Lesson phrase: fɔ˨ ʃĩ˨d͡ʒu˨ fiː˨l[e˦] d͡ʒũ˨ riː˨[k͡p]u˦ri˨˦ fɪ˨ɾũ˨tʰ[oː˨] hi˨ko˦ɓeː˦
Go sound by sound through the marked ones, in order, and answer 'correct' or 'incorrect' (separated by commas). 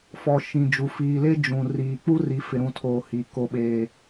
correct, correct, correct